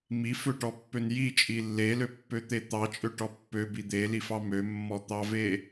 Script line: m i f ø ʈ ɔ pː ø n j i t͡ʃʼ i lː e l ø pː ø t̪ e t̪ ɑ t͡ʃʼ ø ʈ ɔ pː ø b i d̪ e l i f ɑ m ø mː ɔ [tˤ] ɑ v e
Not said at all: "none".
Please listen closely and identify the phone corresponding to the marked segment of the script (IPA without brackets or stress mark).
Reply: t̪